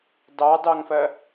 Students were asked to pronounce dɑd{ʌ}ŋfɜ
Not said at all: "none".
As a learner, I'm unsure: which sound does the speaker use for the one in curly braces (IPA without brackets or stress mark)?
ɑ